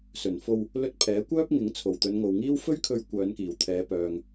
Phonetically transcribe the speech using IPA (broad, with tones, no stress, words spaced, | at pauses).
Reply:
sɵ˨˩nfo˧w | lɵ˧t̚ pʰɛː˨˥kʷœː˥p̚ŋɪ˨˥ŋ t͡sʰo˨˩wt̪ɵ˨˧nŋo˨wŋiː˥w fɵ˥ɥkʰɵ˧ɥ kʷœː˨˧nkiː˨˩w t̪ʰɛː˨˧pœː˨ŋ